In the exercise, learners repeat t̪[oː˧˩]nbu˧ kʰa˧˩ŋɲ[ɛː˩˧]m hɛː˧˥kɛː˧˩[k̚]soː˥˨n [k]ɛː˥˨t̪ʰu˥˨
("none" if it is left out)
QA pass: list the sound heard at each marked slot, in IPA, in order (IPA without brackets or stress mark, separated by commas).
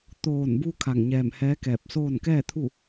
oː˧˩, ɛː˧˩, p̚, k